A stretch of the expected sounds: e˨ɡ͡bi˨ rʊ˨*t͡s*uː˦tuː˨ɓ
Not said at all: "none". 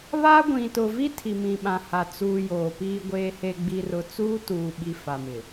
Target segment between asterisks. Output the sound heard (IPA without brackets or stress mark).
t͡s